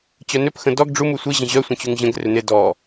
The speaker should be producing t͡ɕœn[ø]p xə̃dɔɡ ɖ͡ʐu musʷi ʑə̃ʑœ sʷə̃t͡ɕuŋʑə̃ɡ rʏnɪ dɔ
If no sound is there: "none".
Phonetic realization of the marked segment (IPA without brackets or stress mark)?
ø